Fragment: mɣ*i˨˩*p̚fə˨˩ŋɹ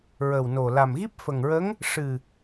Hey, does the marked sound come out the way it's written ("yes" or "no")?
no